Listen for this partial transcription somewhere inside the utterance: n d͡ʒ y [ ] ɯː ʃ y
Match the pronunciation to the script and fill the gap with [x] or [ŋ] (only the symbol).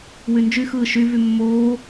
x